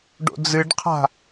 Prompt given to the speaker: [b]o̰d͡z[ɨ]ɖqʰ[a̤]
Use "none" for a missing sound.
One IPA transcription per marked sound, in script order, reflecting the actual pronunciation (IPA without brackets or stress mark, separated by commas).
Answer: ɖ, ɨ, a̤